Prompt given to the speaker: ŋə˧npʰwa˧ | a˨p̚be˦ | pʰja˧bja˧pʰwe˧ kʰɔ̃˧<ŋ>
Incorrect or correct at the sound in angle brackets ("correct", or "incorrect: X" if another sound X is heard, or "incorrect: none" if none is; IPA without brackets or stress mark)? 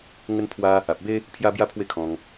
correct